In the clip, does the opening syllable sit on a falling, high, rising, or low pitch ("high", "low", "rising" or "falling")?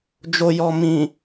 low